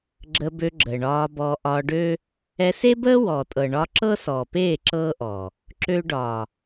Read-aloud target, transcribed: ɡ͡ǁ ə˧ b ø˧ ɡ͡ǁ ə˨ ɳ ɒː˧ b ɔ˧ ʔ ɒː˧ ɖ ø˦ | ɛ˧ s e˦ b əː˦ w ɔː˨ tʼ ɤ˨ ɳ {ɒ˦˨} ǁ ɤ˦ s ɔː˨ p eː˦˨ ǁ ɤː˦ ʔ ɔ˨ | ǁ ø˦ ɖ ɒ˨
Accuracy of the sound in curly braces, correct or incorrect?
incorrect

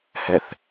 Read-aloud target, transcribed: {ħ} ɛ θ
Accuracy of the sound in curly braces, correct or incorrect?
incorrect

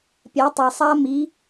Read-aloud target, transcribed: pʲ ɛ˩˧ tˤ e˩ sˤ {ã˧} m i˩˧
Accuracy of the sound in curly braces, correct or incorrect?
incorrect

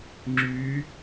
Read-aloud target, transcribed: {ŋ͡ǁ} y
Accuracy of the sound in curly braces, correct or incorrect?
correct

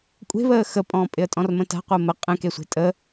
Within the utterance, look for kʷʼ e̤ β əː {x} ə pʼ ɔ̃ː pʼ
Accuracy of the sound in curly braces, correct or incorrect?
correct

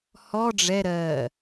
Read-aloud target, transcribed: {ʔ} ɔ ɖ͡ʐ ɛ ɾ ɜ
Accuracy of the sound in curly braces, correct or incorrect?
incorrect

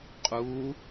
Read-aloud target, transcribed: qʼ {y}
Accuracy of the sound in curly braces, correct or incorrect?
incorrect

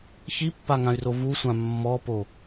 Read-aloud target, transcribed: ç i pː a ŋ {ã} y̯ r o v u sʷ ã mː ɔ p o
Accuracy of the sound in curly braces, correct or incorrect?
correct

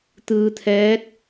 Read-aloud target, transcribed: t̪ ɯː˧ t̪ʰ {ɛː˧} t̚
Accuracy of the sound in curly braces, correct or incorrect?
incorrect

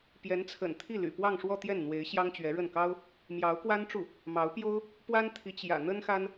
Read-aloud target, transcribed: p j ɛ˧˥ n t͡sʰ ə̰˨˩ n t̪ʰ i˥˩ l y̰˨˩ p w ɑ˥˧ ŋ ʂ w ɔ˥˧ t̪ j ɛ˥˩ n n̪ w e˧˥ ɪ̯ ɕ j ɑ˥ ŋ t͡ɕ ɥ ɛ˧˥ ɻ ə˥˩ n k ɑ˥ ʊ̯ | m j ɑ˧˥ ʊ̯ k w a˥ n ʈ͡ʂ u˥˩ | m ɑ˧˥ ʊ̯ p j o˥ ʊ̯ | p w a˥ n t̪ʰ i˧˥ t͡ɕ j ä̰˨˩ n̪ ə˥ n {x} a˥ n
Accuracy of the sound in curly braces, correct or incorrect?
correct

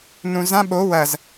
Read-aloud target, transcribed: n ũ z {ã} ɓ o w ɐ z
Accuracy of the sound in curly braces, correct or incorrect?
correct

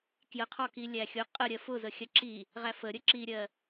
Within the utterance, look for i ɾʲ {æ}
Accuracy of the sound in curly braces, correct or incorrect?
incorrect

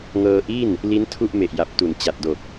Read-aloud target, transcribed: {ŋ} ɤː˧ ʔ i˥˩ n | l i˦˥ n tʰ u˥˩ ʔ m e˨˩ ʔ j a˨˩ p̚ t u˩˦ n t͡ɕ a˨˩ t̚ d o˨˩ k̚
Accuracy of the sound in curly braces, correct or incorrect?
correct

